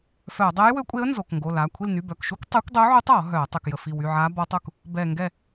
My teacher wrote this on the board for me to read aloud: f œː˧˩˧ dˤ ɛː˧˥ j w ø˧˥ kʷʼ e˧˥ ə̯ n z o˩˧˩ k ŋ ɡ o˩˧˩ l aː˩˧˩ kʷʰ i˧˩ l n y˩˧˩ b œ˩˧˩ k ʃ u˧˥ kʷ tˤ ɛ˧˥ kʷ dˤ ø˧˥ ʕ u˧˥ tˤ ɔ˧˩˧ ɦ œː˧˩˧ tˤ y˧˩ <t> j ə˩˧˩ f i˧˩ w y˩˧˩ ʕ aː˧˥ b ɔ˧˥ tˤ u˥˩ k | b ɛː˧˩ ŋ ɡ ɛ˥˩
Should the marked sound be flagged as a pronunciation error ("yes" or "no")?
yes